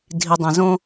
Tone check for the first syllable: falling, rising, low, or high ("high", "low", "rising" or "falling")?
low